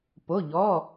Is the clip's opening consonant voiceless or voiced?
voiceless